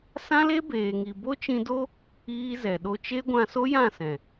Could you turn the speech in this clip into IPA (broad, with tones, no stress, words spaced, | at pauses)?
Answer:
sã˦le˦beː˨ŋi˨ bo˦t͡ʃĩ˧do˦ | iː˧zɛ˨ɗo˧ t͡ʃe˦ɡʷã˧so˦ jã˦˨sɛ̃˨